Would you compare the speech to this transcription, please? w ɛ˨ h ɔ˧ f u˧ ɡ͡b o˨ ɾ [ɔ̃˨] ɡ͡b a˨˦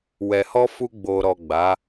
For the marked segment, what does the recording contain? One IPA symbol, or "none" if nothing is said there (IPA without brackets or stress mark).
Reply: ɔ˨